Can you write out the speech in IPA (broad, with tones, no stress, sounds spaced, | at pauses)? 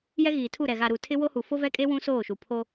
j ɛ˦ ɣ iː˨ tʰ u˦˨ ɾ ɛ˨ ɣ a˨ ɾ u˨ tʰ ɪ˦ w o˦ h u˨ f o˦ v ɛ˦ kʼ e˦ w ũ˦ s oː˦˨ ʃ u˨ pʰ o˦